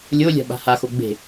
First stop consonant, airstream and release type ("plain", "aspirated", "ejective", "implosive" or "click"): implosive